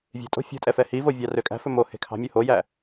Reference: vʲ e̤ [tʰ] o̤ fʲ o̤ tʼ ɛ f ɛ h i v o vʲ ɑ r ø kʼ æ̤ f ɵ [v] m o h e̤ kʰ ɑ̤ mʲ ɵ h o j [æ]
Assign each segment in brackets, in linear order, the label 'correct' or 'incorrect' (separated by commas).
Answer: incorrect, incorrect, correct